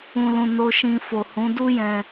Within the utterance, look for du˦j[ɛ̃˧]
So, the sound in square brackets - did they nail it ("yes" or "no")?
yes